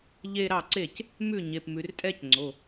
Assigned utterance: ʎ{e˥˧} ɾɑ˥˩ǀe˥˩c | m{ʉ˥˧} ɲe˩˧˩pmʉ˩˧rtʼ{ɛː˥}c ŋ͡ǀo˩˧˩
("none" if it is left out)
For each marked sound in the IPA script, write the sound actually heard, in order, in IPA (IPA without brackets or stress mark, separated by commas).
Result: e˥˧, ʉ˥˩, ɛː˥